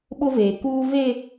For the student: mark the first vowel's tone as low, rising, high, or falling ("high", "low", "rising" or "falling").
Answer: high